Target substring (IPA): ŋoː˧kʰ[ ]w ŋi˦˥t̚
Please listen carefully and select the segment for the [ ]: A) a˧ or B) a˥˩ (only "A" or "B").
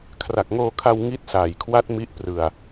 A